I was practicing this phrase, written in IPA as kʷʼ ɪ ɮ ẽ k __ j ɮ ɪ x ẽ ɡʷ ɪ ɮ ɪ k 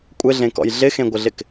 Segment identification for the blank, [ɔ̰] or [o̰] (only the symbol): ɔ̰